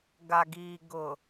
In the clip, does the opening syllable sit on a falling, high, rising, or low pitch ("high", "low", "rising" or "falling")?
low